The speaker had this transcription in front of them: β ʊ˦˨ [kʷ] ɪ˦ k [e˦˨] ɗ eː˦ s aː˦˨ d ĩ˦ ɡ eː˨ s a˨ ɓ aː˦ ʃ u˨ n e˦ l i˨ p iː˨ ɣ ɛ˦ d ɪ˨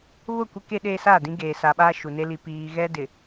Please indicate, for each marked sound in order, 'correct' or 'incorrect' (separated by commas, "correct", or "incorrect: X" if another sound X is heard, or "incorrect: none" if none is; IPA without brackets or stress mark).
correct, incorrect: e˦